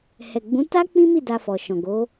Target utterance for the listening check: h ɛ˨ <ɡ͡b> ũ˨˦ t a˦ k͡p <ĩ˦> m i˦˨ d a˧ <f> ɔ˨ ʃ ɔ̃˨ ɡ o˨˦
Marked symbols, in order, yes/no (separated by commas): yes, yes, yes